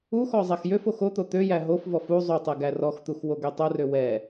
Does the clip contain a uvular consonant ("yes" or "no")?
no